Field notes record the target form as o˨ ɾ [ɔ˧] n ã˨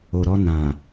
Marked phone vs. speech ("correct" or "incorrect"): correct